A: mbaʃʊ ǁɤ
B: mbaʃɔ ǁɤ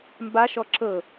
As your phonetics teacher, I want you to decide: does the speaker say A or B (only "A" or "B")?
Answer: B